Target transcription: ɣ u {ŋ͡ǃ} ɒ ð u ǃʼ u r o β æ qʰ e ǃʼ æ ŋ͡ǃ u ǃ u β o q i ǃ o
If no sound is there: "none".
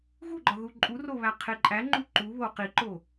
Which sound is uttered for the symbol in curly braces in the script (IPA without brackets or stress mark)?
ɡ͡ǃ